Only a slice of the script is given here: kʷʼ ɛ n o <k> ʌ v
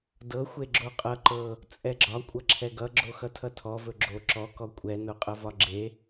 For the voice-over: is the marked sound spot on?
no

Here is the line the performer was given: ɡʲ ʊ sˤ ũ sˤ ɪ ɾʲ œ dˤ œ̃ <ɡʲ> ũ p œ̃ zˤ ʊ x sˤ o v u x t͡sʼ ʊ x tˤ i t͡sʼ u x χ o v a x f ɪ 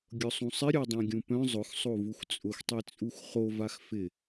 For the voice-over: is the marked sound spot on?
yes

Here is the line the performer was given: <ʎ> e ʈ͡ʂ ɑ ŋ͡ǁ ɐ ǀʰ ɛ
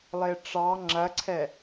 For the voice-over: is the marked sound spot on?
no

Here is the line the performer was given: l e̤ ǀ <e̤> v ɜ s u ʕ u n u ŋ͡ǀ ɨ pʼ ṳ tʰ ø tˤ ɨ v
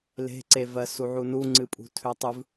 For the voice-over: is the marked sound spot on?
no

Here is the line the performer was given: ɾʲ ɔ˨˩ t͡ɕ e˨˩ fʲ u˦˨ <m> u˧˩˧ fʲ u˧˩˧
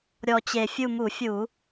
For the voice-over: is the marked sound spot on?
yes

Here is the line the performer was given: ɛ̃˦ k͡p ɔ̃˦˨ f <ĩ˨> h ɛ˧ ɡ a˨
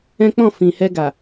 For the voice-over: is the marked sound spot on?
yes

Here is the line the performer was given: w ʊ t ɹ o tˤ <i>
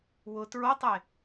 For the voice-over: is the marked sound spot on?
no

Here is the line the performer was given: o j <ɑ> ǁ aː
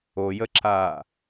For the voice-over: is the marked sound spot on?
no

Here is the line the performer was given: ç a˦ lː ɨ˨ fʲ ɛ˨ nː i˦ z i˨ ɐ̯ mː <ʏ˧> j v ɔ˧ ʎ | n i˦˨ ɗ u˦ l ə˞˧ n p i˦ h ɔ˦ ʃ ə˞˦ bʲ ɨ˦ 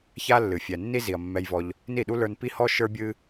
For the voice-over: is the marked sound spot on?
no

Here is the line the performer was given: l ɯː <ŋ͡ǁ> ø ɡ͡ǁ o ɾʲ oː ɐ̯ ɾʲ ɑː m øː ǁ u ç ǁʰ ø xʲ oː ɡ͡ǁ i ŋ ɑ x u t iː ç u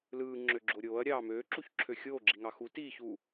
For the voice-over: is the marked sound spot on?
yes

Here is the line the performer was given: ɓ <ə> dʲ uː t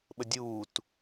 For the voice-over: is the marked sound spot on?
yes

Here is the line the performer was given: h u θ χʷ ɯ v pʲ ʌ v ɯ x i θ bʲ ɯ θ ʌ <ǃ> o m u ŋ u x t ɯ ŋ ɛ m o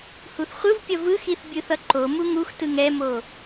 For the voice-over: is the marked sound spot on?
yes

